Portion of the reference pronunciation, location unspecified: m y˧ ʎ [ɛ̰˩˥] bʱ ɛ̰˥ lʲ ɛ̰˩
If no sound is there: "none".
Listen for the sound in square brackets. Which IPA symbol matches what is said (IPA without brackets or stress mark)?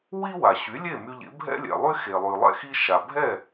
ḛ˩˥